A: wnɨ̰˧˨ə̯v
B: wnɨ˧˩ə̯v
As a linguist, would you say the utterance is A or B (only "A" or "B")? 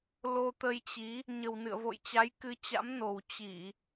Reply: A